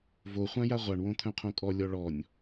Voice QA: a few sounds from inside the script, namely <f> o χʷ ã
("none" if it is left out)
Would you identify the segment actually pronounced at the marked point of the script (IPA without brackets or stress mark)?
v